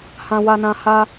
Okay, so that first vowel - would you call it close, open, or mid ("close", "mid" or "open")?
open